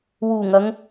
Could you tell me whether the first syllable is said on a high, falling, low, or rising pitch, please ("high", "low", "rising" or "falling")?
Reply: low